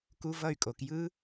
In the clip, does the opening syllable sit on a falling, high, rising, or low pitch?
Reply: high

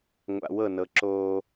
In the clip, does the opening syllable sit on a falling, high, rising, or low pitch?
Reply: low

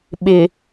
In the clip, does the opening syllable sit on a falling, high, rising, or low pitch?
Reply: low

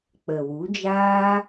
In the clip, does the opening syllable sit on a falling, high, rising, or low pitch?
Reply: low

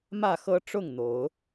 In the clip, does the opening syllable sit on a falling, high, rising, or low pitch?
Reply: falling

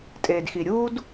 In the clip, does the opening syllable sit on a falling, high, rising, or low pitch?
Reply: low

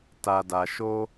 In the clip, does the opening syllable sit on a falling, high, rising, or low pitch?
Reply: low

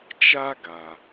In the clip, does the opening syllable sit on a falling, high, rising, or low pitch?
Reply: high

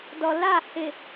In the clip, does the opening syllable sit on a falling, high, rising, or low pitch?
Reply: low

